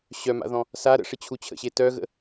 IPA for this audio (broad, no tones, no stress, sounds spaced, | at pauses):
ɕ œ m a̰ ð ɔ̃ | s a ɾ ə̰ ʂ ɪ t͡ɕʰ u t͡ɕʰ ə̰ ɕ e t œ ɣ ə̰